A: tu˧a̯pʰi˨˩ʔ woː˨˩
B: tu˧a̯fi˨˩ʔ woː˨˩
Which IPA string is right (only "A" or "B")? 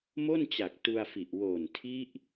B